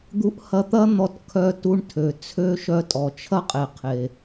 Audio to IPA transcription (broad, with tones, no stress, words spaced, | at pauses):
d̪u˧ʔhɐ˧t̪ɐ˥ n̪ɔ˧tkʰœ˧tu˧ɳtʰø˩ t͡sʰø˥ ʃœ˧tʼɔ˩t͡ʃʰɐ˥qʼe˩ qʰe˩